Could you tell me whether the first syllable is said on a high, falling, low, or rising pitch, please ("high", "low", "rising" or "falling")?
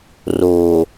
low